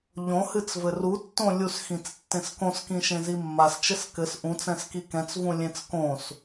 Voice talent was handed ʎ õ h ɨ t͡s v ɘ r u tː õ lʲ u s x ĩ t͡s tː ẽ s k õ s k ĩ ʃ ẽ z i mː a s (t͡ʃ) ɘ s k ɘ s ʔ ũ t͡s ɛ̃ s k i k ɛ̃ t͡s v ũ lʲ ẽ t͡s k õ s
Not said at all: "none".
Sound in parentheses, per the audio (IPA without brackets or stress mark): t͡ʃ